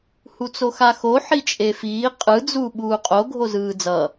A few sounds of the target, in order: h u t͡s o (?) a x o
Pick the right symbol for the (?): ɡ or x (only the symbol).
x